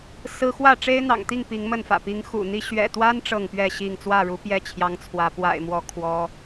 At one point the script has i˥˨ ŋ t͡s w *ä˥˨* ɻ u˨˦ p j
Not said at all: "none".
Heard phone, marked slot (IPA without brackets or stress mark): ä˥˨